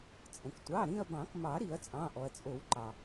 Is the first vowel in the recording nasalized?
yes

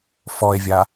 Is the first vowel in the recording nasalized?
no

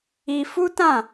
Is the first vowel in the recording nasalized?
no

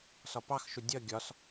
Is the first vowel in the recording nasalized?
no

